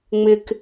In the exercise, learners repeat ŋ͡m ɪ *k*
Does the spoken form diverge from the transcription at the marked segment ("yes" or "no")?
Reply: no